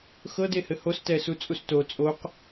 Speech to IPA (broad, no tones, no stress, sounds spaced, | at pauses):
x ɤ d e h ɘ h o s t ɛ s u t͡sʼ u s t o t͡sʼ o q